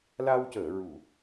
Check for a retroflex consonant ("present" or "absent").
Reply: absent